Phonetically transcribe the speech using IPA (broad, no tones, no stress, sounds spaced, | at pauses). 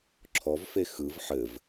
ǁʰ ɔ v f e x ɯ v ħ ɘ v